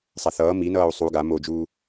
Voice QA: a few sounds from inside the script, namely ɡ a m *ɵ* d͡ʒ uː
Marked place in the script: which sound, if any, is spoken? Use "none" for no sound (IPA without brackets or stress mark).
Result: o